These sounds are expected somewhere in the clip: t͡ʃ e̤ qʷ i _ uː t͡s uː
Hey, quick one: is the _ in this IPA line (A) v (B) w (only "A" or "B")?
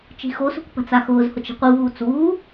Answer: A